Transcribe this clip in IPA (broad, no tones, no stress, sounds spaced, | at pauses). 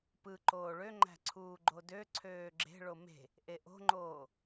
p ɯ ǃ oː ɭ ø ŋ͡ǃ æ̤ ǀʰ uː ɡ͡ǃ o d ø ǀʰ øː ɡ͡ǁ e̤ ɭ o m e̤ | ʔ e ʔ o̤ ŋ͡ǃ oː